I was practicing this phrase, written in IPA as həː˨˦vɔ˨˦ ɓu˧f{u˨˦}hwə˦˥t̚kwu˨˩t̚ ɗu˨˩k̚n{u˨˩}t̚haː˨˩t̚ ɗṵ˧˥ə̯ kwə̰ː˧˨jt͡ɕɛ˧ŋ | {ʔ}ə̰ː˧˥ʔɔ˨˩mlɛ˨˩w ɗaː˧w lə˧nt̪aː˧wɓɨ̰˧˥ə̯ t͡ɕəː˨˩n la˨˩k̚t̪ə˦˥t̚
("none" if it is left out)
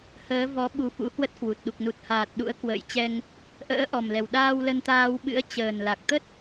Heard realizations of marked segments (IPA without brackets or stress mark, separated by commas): ṵ˧˥, u˨˩, ʔ